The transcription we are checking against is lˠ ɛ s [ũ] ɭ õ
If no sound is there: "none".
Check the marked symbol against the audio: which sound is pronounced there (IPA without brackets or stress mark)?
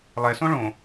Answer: õ